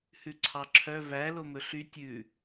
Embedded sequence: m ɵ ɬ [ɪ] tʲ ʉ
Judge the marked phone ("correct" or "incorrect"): incorrect